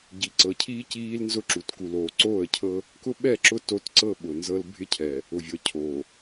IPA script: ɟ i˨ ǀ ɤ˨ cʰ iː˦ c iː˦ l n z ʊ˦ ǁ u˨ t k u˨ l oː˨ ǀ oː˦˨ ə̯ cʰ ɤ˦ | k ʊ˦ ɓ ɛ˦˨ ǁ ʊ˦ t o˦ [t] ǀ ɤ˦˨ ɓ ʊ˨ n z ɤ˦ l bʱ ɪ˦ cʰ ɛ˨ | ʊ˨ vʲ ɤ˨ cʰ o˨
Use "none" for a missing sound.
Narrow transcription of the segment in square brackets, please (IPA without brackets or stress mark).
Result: t